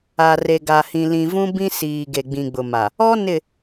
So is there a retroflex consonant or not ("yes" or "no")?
no